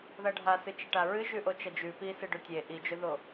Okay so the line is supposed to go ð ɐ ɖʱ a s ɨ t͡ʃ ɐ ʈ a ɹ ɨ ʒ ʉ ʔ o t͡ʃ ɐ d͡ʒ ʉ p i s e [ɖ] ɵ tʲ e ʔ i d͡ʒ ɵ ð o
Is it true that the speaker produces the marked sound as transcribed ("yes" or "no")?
yes